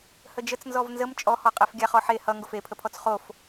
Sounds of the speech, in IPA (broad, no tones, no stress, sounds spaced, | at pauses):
h ə d͡ʒ ə t͡s n z ɔ v n z ə m t͡ʃʼ ɔ h ɔ qʼ ɛ f ɡʲ a χ ɔ ħ e h ʌ ŋ ɡ o f e pʰ ə pʰ ɔ t͡s χ o f